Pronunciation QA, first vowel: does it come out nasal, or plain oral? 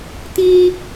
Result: nasal